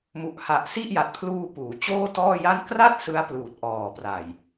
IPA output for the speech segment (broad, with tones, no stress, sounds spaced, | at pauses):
m u˨˩ ʔ h a˨˩ ʔ s i˥˩ ʔ j a˨˩ t̚ pʰ l uː˧ p uː˩˦ t͡ɕ oː˥˩ t ɔː˥˩ j a˥˩ n k r a˥˩ t̚ s ɯ˦˥ a̯ p l uː˨˩ t̚ ʔ ɔː˨˩ p r a˨˩ j